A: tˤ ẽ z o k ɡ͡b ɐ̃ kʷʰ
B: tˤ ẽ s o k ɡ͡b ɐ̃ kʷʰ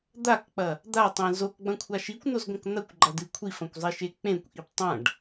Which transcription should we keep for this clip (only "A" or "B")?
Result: A